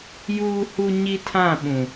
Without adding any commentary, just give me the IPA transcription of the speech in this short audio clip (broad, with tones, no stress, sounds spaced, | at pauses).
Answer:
j uː˦ h u˦ ɲ i˦ tʰ ã˦˨ ɓ ũ˨